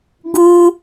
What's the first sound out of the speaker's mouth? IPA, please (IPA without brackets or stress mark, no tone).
ɡ